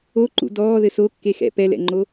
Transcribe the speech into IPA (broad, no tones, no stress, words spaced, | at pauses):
o ǃṵdɔːðɘ so kːexɛ̰ pɛlɛ̰ŋ͡ǃo